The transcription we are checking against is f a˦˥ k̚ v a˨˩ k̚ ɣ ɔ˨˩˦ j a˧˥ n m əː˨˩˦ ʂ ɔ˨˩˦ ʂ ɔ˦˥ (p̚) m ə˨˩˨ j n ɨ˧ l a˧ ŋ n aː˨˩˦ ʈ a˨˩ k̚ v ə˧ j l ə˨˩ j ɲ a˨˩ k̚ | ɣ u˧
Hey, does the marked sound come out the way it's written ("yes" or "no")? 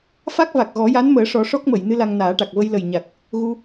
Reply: no